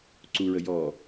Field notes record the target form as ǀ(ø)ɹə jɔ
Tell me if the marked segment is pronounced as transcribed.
no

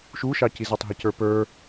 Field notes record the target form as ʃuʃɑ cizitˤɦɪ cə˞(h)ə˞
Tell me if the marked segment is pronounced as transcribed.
no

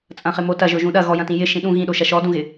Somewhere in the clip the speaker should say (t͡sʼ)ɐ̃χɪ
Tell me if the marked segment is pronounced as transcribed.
yes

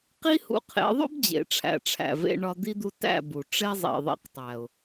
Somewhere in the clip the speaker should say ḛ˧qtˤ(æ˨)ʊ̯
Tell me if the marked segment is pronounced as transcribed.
yes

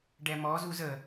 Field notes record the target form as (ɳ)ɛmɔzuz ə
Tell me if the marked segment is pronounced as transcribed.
no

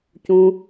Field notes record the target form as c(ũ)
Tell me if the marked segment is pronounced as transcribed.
yes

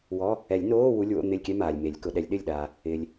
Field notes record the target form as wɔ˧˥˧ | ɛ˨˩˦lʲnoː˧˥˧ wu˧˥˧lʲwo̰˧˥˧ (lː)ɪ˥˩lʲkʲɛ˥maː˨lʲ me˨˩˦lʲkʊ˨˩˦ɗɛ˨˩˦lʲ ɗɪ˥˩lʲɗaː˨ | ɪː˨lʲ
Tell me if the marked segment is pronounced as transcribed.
no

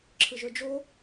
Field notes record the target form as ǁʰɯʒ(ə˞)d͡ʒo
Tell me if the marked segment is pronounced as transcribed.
yes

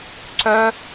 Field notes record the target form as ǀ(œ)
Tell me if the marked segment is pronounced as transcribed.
yes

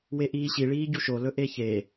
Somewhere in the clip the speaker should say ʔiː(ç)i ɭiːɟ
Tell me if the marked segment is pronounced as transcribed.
no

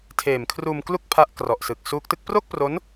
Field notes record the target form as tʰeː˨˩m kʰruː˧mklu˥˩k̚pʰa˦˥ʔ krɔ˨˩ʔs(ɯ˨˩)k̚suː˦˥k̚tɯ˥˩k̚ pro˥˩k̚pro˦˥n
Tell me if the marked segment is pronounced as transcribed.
yes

